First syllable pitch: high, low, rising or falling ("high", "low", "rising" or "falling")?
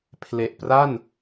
low